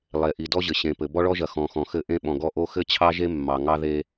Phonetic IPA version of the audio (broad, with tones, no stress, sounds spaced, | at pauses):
lˠ e˨ ʔ i˨ d ɔ˦ ʑ ɘ˨ ɕ ẽ˨ p ɘ˨ b ɔ˦ ɭ ɔ˦ ʒ ɐ˨ x ɔ̃˨ x ɔ̃˨ x ɘ˦˨ ʔ ẽ˦ ɓ ɔ̃˨ ɡ ɔ˦ ʔ o˦ x ɘ˦ t͡ɕʰ ɑ˦ ʒ e˦ mː ɑ˨ ŋ ɑ˦ ð e˦